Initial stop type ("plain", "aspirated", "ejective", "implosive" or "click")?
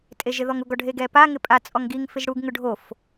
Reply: ejective